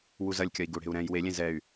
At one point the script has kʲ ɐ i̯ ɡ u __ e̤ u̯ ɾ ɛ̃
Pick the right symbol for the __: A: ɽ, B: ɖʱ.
A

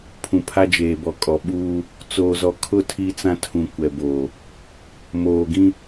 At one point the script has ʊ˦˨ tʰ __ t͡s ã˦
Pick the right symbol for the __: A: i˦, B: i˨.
A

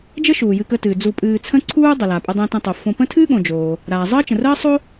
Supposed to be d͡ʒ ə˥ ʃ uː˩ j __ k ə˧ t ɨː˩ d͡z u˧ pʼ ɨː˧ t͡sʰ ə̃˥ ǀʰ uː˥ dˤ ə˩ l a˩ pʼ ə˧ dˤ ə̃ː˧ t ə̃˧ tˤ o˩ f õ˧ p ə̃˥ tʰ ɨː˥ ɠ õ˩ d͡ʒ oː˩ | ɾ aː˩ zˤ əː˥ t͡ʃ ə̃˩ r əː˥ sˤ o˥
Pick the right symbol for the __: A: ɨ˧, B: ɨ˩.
A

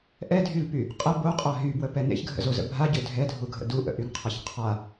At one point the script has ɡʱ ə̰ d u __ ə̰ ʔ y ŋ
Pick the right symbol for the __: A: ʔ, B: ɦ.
A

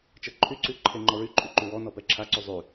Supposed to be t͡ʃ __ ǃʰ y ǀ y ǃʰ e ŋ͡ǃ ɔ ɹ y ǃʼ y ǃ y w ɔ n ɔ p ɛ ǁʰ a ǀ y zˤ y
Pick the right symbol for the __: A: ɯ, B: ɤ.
B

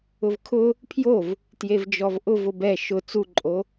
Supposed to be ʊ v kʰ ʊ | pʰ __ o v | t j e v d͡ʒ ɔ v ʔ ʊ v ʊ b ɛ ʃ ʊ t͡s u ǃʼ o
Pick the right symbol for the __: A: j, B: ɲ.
A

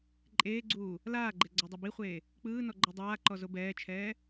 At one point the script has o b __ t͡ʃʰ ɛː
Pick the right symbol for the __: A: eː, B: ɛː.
B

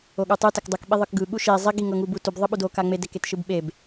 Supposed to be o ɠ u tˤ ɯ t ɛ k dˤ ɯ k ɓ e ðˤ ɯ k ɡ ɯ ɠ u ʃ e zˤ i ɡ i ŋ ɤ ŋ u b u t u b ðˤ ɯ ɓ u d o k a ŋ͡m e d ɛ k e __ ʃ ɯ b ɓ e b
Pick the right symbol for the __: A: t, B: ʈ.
A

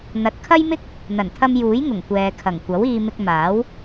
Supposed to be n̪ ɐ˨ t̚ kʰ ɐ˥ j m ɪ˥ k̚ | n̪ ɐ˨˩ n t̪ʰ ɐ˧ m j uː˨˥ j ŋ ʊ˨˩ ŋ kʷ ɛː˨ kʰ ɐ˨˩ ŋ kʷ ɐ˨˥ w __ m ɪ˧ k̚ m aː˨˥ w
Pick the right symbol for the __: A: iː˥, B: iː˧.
B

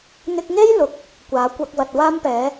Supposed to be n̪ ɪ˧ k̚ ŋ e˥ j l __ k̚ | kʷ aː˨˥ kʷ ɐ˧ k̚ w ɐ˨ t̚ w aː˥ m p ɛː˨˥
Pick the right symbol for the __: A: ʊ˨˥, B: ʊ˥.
A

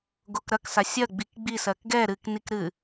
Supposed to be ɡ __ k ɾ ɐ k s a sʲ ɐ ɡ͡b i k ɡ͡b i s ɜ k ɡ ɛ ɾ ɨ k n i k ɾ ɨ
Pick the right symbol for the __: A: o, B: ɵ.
A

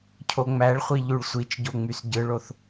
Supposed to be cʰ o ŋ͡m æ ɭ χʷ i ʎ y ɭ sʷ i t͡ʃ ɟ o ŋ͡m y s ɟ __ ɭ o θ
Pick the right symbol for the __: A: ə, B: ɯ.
B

